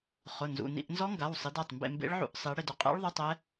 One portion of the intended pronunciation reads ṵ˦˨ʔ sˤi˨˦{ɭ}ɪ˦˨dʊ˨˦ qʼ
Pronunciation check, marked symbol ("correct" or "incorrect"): incorrect